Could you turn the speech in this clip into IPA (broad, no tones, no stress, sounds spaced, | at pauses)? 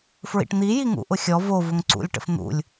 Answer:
f ɹ ḭ ʈ n̪ i j i ŋ ṵ ʔ ʊ xʲ ɔ v o v ʊ ŋ ǀ ṵ lʲ ʈ ə̰ f n̪ ṵ lʲ